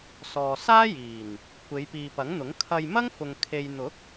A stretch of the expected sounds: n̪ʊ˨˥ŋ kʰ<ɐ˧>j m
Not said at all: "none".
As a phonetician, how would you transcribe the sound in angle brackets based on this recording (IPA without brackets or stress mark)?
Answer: ɐ˧